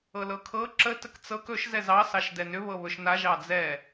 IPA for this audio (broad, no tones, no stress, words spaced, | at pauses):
ɤlɤkʰɤ ǁə təkt͡sɤk ɵʃ zɛzɑ sɑʃdɛnʏ βɤβɵʃna ʒɑd͡zɛ